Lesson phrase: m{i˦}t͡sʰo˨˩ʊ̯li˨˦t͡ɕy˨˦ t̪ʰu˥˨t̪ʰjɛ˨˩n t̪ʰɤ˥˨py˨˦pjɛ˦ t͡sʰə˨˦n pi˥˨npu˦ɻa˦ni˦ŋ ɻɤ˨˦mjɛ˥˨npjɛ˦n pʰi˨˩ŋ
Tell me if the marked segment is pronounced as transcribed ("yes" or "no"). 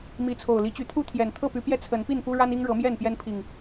no